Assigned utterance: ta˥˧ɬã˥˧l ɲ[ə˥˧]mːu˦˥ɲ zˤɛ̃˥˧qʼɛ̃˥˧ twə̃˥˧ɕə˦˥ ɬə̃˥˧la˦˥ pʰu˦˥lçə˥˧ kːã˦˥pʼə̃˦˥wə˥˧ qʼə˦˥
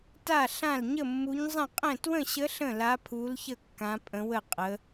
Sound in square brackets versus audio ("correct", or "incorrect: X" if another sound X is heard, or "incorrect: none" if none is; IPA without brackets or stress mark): correct